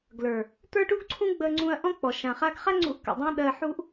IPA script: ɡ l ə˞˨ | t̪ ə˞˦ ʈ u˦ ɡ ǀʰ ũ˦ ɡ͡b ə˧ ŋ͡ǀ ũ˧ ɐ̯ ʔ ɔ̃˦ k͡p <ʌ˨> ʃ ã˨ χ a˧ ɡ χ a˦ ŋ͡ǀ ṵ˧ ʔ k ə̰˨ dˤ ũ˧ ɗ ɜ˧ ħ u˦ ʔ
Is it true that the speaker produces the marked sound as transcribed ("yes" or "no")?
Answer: no